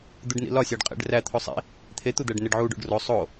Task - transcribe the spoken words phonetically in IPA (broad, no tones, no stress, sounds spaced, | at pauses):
d̪ u ɖ n ḭ l ɒ sʲ æ ɖ qʼ ḛ ɖ r æ t̪ʰ o sˤ ḭ | t̪ʰ e t̪ u d̪ æ ɖ n e ɖ ʕ u ɖ o̰ ɖ r o sˤ o